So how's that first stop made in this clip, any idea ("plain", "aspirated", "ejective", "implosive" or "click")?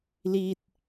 plain